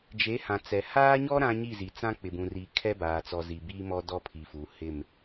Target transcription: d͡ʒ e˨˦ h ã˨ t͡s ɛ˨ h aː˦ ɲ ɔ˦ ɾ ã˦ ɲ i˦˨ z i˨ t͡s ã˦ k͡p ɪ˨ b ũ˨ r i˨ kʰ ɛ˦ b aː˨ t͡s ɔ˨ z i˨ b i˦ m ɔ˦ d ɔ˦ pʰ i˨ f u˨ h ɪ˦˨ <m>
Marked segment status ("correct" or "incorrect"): correct